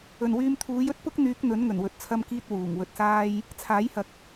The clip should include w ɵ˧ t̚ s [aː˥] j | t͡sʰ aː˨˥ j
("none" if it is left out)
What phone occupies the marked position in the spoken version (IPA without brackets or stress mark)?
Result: aː˥